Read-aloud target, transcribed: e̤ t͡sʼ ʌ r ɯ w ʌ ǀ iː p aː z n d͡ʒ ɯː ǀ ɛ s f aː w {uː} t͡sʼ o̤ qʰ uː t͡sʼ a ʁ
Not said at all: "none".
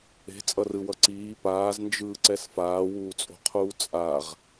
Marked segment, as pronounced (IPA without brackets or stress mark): uː